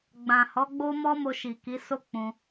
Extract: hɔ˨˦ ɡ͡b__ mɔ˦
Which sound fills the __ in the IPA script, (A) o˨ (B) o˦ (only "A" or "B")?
B